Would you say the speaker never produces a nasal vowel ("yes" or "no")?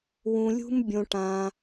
no